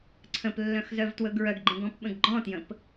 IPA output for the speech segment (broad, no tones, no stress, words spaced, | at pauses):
ǀʰə̃plːœ̃x zœvtwɵɡɹœɡɡ͡ǃẽɡ ɔ̃pɓə̃ɡɡ͡ǃɔ̃tjə̃p